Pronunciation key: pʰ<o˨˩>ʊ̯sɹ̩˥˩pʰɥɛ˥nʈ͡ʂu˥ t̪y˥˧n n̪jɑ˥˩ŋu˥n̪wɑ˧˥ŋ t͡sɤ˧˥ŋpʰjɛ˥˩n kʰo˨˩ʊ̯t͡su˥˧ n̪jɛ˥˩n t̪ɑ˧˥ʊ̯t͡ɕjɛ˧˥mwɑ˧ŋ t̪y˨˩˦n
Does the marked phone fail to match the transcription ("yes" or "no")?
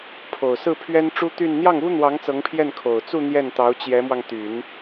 no